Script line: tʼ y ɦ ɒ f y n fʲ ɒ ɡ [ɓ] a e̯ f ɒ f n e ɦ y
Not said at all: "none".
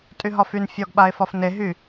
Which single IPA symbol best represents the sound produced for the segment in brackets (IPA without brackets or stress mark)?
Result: ɓ